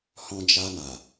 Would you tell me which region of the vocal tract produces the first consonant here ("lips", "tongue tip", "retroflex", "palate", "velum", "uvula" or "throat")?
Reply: throat